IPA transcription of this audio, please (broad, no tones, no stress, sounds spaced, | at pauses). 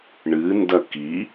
ɳ ɨ n d ɐ k i